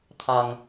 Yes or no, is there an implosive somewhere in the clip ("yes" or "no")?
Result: no